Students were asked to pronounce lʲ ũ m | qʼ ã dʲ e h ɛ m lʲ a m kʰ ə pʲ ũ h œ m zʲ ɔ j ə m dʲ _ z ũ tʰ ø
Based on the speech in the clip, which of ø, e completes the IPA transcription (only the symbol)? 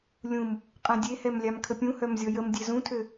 e